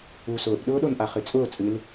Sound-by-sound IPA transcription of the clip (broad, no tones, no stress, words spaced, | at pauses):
u sʊːʔɗʊːɗonʔa χɨt͡sʼʊː t͡sʼɨl